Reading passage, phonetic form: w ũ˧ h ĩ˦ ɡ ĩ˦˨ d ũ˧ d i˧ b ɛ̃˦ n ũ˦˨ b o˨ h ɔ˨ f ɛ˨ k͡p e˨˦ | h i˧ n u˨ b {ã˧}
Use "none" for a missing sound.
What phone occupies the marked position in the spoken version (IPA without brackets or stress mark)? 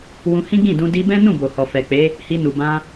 ã˧